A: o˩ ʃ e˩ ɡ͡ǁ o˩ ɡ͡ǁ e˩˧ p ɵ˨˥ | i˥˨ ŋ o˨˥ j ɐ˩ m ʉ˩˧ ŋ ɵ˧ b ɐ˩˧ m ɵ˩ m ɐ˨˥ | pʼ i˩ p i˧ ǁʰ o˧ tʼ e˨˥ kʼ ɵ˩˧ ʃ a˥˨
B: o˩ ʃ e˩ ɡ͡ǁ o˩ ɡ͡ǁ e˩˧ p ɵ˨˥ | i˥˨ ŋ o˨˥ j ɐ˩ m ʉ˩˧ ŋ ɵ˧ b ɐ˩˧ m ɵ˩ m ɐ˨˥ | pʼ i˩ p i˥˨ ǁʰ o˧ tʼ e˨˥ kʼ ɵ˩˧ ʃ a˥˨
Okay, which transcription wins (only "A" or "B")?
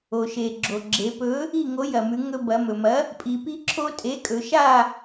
A